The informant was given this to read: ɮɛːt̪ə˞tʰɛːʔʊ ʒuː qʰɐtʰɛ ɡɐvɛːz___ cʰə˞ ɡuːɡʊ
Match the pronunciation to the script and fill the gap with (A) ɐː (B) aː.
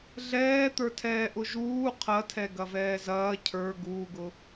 A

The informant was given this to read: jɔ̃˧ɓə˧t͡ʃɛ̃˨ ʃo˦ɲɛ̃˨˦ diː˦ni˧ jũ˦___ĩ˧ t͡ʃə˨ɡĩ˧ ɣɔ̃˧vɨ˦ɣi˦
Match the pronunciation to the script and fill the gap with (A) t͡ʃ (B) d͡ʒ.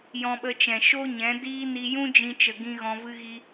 B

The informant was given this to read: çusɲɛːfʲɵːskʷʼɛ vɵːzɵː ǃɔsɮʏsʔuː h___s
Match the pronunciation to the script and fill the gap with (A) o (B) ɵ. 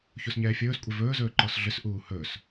B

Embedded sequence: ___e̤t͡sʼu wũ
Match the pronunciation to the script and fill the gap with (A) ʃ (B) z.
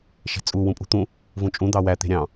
A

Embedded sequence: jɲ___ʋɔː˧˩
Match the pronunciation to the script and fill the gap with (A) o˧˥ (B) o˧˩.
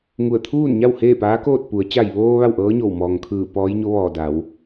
A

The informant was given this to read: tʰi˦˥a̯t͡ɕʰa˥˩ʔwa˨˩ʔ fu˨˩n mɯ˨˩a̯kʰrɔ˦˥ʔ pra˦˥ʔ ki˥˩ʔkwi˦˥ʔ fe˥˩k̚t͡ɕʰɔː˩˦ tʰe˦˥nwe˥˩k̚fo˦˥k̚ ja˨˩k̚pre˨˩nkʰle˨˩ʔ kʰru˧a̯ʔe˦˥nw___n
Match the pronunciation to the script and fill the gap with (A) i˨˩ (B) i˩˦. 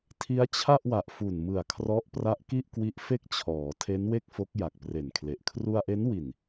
A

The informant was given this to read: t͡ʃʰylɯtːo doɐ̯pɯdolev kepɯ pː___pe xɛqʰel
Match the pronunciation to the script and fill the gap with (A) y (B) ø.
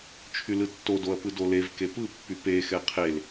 A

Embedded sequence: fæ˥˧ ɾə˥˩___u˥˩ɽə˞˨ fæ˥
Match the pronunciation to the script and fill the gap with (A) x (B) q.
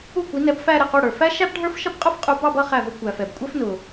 B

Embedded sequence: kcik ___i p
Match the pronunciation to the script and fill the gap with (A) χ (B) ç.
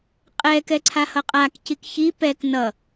B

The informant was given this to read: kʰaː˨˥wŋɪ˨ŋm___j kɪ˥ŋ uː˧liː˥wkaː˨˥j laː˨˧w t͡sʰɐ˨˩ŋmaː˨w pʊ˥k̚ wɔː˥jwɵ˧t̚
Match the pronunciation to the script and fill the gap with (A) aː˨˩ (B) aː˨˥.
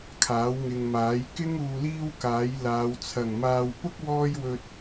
B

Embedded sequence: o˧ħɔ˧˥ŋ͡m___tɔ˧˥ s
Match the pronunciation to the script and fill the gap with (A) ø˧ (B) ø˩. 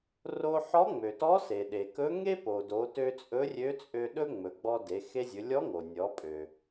B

